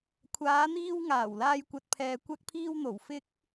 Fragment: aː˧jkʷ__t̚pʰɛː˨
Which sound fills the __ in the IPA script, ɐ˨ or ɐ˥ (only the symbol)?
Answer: ɐ˨